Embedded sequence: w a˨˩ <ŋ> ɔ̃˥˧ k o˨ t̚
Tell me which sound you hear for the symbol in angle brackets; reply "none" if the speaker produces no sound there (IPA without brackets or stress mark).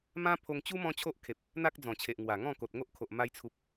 ŋ